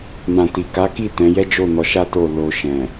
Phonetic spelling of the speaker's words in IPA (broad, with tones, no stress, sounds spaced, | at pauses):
m ã˨ t i˨ k a˨˦ k i˦˨ t ɛ̃˨˦ j ɛ˦ d͡ʒ o˦˨ n ɔ˧ ʃ a˦ t o˦˨ l o˧ ʃ ɛ̃˨